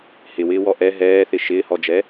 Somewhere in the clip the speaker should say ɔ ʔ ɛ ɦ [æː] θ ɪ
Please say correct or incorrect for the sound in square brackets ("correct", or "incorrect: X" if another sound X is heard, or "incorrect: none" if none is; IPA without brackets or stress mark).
incorrect: ɛː